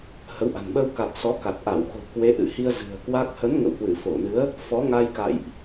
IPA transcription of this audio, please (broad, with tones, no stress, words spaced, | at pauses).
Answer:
hə˨˦wʔa̤˨˩n ɓə˧wka˨˩t̚ sɔ˨˦ka˨˩t̚ʔa˧˩w xo̤˨˩ kwe˨˦ʔɨ̰˧˨hi˧ə̯ zɨ̤˨˩ə̯kwa˦˥k̚ hə˨˦n ŋə̰˧˨whwɨ˧˩fo˧˩nɨ˨˦ə̯ | fɔ˨˦ŋa˧jka̰˧˨jʔ